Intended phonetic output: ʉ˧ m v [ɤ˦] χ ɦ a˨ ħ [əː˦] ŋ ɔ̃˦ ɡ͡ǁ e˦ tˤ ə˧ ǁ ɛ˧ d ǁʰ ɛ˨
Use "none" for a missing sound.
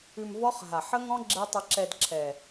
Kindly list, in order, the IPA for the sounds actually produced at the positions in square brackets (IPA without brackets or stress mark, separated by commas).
ɔ˦, ə˦